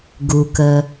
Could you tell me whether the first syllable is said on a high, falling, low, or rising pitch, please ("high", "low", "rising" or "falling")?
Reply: low